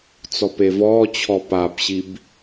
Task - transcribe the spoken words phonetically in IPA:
t͡sɔpevɔːt͡ɕʰɔ pabɕib

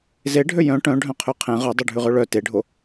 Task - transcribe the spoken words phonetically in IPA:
zeɖʱø jœ̃ ʈœ̃ɖʱœ̃qʰø qʰẽ ʁœdˤʉɖʱʉʁø ɭœ teɖʱo

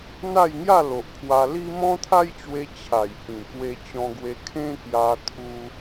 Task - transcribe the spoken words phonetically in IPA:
n̪a˥˧jŋja˥˧lo˨ʔ pʰwa˧li˦ mɔ̃˦t̪ʰa˦jt͡ɕwe˧ t͡ɕʰa˨˩jhĩ˨˩kwe˧ t͡ɕɔ̃˧ɡwe˧kʰẽ˦ kja˧ t̪ʰu˧

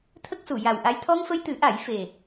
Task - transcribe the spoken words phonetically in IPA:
t̪ʰə˦˥k̚su˨˩˨ ja˨˩wʔa˧j t̪ʰɔ˧ŋfə˧jt̪ɨ˨˩˦ʔa˨˩˦j fe˨˩

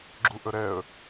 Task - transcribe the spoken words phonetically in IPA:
ɡ͡ǁuʔəɾɛə̯

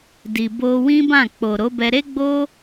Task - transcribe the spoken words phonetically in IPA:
di˨ bo˧wĩ˦bã˦˨ k͡po˨ɾo˨˦bɛ˧ ɾe˦ɡ͡bo˦

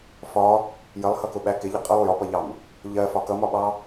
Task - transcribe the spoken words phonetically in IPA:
fɒ | jəlˠhʌkʊɓæ kɪʎə qʼʌlˠ jɒpʌʎɑm | ʎɜfɒ kʌmɒɓɑ

